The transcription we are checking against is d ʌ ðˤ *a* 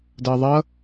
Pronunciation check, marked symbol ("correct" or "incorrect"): incorrect